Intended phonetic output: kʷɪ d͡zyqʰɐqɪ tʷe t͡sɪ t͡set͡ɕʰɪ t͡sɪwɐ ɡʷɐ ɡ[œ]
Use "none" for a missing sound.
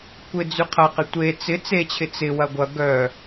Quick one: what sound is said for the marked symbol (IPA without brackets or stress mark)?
œ